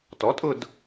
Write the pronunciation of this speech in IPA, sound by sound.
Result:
t ɔ˩˥ tʼ ʊ˦˨ d

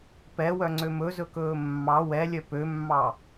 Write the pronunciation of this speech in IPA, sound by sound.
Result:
p ɛ w œ ŋ͡ǀ ø m ɵ z ɵ k ɵː mː ɑ w ɛ lʲ œ p ø mː ɑ

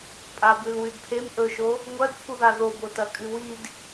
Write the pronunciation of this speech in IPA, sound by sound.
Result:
pʼ a b ʉ l w ʉ d pʰ e m ʔ ɵ ʃ o | ŋʷ ɐ d pʰ u ð a ð o b o t ɐ kʼ ɨ w i d

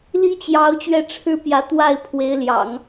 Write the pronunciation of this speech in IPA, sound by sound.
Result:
l i˥ t͡ɕ j ɑ˧˥ ʊ̯ t͡ɕ ɥ ɛ˥˩ ʈ͡ʂʰ ɻ̩˥ p j ä˧˥ t̪ w a˥˩ ɪ̯ pʰ w e˧˥ ɪ̯ l j ɑ̰˨˩˦ ŋ

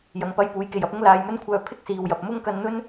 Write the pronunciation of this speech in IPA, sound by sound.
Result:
j ɐ˨ ŋ p ɐ˧ j p uː˨˥ j k e˨ j ɐ˨˥ p̚ ʊ˥ ŋ l aː˧ j m ɵ˥ n kʷʰ œː˧ pʰ ɪ˥ k̚ s iː˨ w j ɐ˨ p̚ m ʊ˥ ŋ k ɐ˧ n n̪ ɵ˥ n

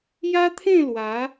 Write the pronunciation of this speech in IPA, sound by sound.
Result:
j a˦ t̪ʰ ẽ˥˧ l w a˨˦

